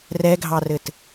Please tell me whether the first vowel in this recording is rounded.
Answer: no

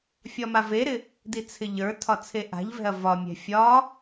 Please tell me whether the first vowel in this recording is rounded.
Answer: yes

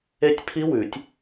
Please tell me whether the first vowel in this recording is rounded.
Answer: no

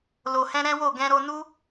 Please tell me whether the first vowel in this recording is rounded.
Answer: yes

